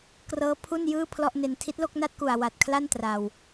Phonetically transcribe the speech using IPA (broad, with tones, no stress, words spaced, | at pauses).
krɤː˦˥ pʰu˥˩njɯː˥˩ pʰlɔ˥˩ʔne˧n tʰi˦˥t̚lo˥˩k̚na˥˩t̚ku˨˩a̯ wa˨˩t̚kʰla˥˩n tra˨˩w